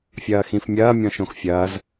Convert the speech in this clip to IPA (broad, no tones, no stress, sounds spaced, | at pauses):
fʲ ɐː x ĩ f mʲ ɐː mʲ ɔ̃ ʃ õ x fʲ ɐː z